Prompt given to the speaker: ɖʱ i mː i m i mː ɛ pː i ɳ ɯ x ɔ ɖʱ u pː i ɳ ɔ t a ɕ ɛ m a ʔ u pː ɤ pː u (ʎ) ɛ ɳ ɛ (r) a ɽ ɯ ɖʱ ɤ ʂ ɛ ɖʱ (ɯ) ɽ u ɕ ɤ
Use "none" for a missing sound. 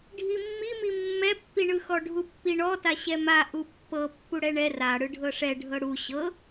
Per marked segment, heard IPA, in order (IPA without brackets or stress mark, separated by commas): ɽ, r, ɤ